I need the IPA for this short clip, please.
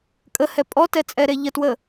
kʼ ə h ɛ pʼ ɔ t ɛ t͡sʼ ɛ ɾ e ʎ ə t w ə

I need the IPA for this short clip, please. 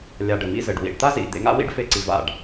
lʲ a˨ ɖ ɘ˨ m ḭ˦ z ɘ˨ ɖ w ḭ˨ ɖ t̪ a˦ z ḭ˨ d̪ ḛ˨˦ ŋ a̰˦ w ḭ˦ ɖ f e˧ ǀ i˨ v a̰˦˨ ɖ

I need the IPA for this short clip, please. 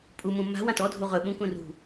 pʼ u m ũ m a̤ w ã t ɔ dʱ u ʁ ɵ ɓ ũ k ũ r ṳ

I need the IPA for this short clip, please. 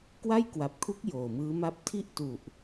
k w a˥˩ j k w a˨˩ p̚ kʰ u˦˥ k̚ j oː˨˩ m ɯː˦˥ m a˥˩ p̚ tʰ i˥˩ ʔ t u˨˩ ʔ

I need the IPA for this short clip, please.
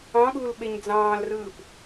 ɑ̃ ɠ uː l ɓ e ɲ d͡z ɑ̃ː l r ɯː p

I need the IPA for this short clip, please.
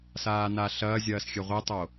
s aː n a ɬ ɐː zʲ ɐː s xʲ ɘ ʁʷ i tˤ o

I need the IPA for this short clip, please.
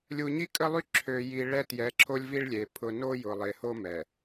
lʲ u˨ ɲ i˦ kʼ ə˦ lˠ y˦ ǁʰ ø˨ j i˨ ɭ ɛ˦ t j ɛ˨˦ ǁʰ o˦ lʲ v i˦ ɭ lʲ e˨ pʰ ʊ˨ n o˦ j ʊ˨ lˠ e˨ h o˦ m ɛ˨

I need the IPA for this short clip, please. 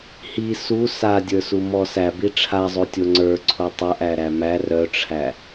h i s u s a dʲ ə˞ s u m ɔ s æ b i ʈ͡ʂʰ a zˤ o tʲ o ŋ͡ǀ ə˞ ǀʰ o tˤ œ ʔ æ ɾ æ m æ r œ ʈ͡ʂʰ æ

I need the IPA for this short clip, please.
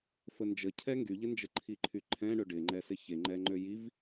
f ə n d͡ʒ ə cʰ ɛ ŋ ɡ y ʎ ɪ n d͡ʒ ə ǃʰ i ǃʰ y ǃʰ ɛ̃ ɳ ø ɖ ɪ ŋ͡ǃ ɛ s ɪ ç e ŋ͡ǃ ɛ ŋ͡ǃ ø j i v

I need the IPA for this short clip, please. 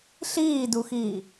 ɬ iː d u x iː

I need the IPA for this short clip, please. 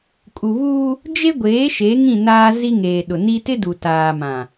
kʼ u˨ β uː˦ | d͡ʒ e˦ ɡʷ eː˨˦ ʃ e˨˦ ŋ ĩ˦˨ n aː˦ z i˦ ŋ eː˨ ɗ ʊ˨ n i˦ t ɪ˦ d u˨ t aː˨ m ã˨

